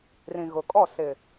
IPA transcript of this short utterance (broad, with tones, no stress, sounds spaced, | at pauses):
r ĩ˨ ɣ ʊ˨ kʼ ɔ˦˨ s ɪ˨